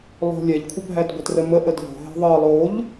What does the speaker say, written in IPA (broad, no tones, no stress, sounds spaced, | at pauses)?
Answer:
lˠ o̤ lʲ ɛ ʎ kʷʰ ə bʱ æ d ɡʷ ə t r ə m ə ʔ ə d ʎ o̤ ɦ ɛ̤ ðˤ ɤ lˠ o ʎ